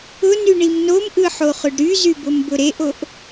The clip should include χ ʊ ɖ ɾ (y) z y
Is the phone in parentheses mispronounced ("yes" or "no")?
no